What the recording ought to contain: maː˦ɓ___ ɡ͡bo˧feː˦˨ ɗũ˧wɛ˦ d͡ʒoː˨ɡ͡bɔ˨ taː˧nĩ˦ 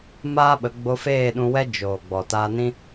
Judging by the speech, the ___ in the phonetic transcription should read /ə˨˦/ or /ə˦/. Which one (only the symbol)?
ə˨˦